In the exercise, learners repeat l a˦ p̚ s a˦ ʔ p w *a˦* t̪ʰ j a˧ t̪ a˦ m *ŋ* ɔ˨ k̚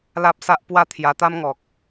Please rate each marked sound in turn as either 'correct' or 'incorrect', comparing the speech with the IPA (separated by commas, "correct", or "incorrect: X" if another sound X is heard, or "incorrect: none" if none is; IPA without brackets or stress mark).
correct, correct